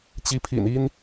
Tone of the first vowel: rising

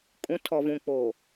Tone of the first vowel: rising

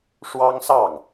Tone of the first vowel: high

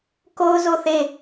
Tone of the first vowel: high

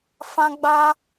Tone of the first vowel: high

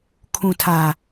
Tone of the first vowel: low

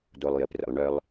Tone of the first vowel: low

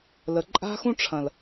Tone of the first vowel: low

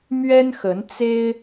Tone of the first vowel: high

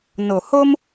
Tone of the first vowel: low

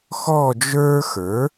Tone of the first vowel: falling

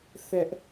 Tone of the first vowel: high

